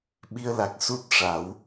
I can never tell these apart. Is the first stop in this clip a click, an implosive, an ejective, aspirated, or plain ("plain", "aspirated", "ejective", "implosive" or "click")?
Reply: implosive